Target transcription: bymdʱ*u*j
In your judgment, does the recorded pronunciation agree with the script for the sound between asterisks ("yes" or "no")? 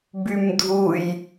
yes